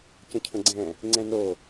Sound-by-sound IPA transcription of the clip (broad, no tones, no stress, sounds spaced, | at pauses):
c ə̃ cʰ ə̃ ɡ͡ǀ ɛ̃ | ŋ͡ǀ ɛ̃ n o